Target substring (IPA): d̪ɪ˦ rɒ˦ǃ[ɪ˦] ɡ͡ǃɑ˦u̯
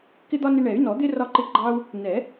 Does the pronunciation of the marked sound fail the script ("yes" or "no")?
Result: no